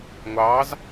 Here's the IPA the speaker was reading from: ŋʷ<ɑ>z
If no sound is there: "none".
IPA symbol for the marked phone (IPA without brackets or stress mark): ɑ